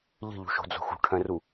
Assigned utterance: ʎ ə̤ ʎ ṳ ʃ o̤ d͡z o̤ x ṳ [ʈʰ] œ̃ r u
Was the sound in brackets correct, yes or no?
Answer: yes